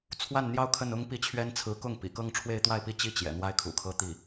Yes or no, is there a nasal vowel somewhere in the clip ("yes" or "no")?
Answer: no